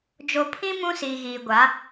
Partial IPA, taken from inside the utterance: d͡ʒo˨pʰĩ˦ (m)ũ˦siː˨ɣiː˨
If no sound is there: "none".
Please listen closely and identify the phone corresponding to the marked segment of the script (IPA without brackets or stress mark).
m